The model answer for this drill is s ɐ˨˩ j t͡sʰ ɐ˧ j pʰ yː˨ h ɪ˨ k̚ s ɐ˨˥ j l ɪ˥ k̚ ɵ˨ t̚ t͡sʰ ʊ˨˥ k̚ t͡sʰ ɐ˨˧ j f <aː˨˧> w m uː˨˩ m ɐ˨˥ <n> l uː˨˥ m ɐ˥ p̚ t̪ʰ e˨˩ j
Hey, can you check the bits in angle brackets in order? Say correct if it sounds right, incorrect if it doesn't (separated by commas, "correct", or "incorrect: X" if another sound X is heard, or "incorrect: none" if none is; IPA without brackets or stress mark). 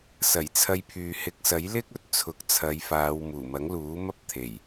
correct, incorrect: ŋ